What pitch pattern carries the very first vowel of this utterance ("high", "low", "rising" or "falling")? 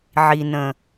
low